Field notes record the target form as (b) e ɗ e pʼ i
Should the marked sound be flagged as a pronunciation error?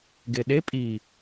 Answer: yes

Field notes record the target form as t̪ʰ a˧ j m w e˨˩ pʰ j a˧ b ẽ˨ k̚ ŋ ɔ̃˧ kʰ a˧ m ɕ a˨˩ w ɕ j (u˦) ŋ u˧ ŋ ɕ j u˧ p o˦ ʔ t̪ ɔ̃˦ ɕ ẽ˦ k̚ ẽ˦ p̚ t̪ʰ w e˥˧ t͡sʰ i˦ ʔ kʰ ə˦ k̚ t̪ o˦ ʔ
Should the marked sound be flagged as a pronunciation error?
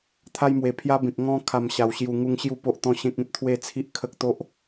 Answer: yes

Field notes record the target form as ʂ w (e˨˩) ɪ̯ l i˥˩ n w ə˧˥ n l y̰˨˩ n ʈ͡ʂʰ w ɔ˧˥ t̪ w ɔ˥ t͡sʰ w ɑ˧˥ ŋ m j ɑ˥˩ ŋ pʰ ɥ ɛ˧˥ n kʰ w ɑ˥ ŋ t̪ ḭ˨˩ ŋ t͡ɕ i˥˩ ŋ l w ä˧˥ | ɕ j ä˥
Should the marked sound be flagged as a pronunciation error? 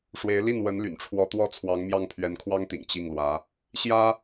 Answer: yes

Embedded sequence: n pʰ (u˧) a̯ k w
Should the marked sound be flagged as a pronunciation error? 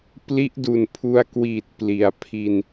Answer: no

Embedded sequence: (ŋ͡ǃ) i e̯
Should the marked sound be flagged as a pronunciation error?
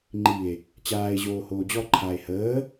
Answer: no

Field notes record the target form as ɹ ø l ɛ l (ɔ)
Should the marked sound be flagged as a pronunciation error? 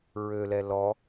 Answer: no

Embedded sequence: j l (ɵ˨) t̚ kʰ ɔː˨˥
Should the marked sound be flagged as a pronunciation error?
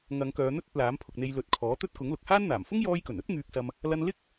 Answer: yes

